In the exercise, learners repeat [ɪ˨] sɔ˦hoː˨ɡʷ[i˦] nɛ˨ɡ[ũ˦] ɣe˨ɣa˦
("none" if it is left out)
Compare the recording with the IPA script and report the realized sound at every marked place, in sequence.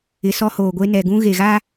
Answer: ɪ˨, e˦, ũ˦

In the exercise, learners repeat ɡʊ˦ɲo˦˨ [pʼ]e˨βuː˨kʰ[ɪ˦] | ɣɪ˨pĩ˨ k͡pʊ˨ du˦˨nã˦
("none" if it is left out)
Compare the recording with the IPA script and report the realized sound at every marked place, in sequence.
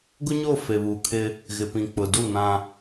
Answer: f, ɪ˦

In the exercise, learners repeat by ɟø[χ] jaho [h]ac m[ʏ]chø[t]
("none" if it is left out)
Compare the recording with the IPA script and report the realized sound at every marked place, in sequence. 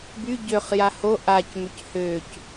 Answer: χ, ʔ, ʏ, c

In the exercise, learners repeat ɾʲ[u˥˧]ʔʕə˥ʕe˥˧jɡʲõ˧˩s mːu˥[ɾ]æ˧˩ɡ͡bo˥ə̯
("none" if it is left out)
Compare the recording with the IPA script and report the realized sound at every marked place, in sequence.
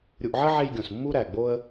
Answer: u˧, ɾ

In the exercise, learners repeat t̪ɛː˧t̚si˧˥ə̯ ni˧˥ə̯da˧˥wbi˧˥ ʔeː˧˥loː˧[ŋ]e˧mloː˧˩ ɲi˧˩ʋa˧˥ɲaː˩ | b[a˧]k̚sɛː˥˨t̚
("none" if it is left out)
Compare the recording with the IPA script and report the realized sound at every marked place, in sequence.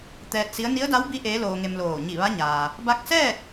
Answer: ŋ, a˧

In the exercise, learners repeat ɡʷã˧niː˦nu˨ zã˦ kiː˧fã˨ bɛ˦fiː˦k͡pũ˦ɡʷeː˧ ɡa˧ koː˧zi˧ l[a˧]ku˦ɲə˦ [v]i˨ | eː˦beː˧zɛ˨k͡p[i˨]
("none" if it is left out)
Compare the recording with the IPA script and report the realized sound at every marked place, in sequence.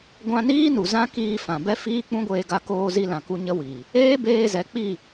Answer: ã˧, w, i˦˨

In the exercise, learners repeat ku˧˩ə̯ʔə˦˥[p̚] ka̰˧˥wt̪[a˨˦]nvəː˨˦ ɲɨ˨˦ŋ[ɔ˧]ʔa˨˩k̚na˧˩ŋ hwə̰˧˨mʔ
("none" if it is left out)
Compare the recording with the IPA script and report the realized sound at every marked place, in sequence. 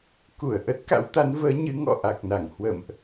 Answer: t̚, a˨˦, ɔ̰˧˨

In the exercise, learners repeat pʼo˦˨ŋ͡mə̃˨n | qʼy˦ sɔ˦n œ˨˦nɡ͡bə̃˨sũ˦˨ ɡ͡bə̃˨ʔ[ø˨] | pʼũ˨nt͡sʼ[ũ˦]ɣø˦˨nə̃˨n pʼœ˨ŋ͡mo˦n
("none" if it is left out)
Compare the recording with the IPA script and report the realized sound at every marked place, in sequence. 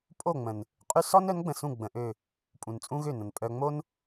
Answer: ø˦˨, ũ˦

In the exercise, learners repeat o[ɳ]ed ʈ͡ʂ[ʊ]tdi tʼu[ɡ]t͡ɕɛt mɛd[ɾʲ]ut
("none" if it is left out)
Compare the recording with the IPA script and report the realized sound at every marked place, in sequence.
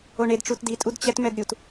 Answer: ɳ, u, d, ɾʲ

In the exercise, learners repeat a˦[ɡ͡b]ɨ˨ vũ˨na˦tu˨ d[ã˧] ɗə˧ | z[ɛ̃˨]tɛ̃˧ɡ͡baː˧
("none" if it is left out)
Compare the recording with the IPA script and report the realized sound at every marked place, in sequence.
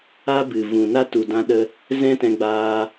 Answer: b, ã˧, ɛ̃˦

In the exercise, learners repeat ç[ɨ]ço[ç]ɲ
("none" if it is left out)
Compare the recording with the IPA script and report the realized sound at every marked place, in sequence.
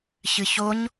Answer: ɨ, none

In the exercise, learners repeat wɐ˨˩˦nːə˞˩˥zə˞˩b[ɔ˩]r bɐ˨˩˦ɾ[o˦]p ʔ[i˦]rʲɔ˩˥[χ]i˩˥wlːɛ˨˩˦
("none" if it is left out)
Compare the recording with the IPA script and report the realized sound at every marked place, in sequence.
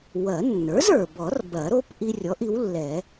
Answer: ɔ˨˩˦, o˦, i˦, ʔ

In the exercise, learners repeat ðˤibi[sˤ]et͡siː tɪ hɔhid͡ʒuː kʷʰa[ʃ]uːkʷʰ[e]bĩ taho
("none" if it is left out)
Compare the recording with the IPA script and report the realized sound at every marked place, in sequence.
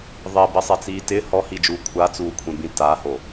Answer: sˤ, t͡s, ẽ

